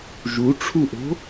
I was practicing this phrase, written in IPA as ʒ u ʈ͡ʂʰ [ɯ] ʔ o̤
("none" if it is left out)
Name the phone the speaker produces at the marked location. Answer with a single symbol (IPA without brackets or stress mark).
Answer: u